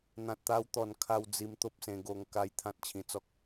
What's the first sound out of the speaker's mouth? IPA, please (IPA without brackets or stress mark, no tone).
n̪